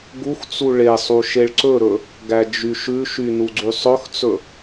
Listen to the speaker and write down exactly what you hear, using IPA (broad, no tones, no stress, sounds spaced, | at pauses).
ɡ u x t͡s u ɭ e sˤ u ʃ e ɭ ǀ ɵ ɾ ɵ | ɡ æ d͡ʒ y ʃ ʉ ʃ y n u ɡ͡ǀ y sˤ ɵ x t͡s ɵ